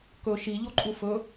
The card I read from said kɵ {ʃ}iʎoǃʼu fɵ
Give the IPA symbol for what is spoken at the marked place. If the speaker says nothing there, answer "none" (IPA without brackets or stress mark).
ʃ